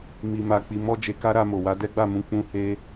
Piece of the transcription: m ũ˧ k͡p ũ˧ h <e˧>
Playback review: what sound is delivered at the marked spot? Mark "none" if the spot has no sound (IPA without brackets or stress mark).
e˧